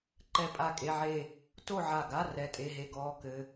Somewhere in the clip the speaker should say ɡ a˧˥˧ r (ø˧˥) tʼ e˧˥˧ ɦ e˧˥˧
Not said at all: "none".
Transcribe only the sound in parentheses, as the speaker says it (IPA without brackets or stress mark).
ɛ˧˥